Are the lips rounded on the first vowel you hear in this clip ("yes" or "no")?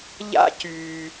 no